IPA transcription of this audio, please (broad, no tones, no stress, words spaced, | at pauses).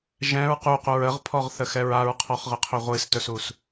ʒɛ̃ɹ ququɹ əʁpʰɔʁθəxɛɹ aɹqʰɔχʁəqʰɵ ʁʷistɵsus